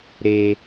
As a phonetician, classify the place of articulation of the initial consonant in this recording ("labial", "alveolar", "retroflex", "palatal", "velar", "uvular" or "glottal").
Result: alveolar